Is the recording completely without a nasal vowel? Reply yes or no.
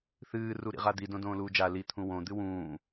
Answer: no